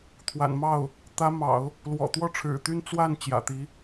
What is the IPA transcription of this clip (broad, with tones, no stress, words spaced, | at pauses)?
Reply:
t̪ʰwa̰˨˩nmɑ˥˩ʊ̯ | t̪ä˧˥mɑ̰˨˩˦ʊ̯ | lwɔ̰˨˩t̪wɔ˥˩ʈ͡ʂʰɻ̩˨˩ t̪y˥n t͡swa˥˩n t͡ɕjä̰˨˩t̪i˧˥